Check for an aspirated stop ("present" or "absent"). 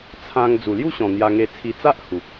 present